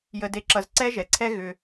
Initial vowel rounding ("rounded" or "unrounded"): unrounded